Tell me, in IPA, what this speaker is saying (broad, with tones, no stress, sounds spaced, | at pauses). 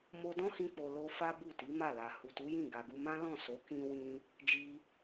m o˧ d ɔ̃˦ h ĩ˧ k͡p o˨ l o˧ f a˦ b u˦˨ t i˨˦ m a˦˨ l a˨ h u˨ t u˨˦ j ĩ˦˨ ɡ a˨ ɡ u˧ m ã˦ l ɔ̃˦˨ s o˨˦ k ĩ˧ w ĩ˧ | d͡ʒ i˧